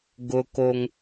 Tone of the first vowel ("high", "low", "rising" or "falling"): high